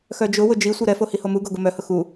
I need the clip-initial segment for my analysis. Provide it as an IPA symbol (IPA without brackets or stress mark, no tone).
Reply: x